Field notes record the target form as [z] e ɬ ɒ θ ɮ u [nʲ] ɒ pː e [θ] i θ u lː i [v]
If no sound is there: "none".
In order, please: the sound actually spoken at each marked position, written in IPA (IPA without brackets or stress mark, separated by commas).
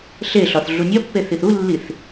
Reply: ɬ, nʲ, θ, θ